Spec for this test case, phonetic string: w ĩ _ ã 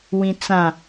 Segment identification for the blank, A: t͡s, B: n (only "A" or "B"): A